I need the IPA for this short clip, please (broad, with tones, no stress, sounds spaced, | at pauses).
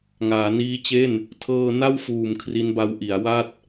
ŋ aː˩˦ n iː˦˥ t͡ɕ e˥˩ n | tʰ ɤː˧ n a˥˩ w f uː˨˩ m kʰ r i˦˥ n b a˦˥ w ʔ i˩˦ a̯ w a˥˩ t̚